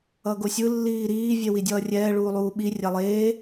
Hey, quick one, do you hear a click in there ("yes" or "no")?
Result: no